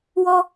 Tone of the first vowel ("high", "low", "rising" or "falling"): high